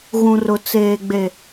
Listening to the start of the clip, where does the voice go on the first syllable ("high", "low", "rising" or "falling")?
low